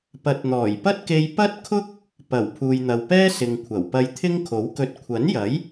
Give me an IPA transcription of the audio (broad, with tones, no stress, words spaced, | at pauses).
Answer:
pɐ˨˥t̚n̪ɔː˨˩jpɐ˥t̚ke˧j pɐ˥t̚kʰʊ˥k̚ | pɐ˨˩w pʰuː˨jn̪ɐ˨wpɛː˥ sɪ˨ŋkʷʰɐ˨˩wpɐ˧j t̪ʰɪ˥ŋkʰo˨˥wkɵ˧t̚ kʷʰɐ˨˥njɐ˨˥j